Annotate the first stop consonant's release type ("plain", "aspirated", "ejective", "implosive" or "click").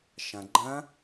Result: click